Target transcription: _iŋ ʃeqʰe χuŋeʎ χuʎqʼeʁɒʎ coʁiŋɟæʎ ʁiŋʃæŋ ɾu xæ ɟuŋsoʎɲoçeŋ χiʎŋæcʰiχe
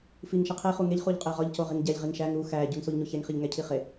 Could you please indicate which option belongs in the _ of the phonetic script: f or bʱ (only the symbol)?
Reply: f